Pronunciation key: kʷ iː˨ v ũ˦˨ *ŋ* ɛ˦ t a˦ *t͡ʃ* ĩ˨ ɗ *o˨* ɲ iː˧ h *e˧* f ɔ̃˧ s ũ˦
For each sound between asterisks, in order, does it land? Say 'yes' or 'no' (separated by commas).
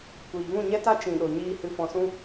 no, yes, yes, no